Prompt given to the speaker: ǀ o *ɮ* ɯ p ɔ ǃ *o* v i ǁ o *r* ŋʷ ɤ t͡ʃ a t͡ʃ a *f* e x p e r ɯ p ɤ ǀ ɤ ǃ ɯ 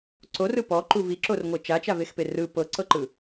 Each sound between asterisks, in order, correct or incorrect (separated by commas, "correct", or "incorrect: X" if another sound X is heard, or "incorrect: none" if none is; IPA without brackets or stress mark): incorrect: r, incorrect: u, correct, incorrect: v